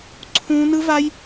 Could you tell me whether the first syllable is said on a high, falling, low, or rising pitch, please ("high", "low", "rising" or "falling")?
high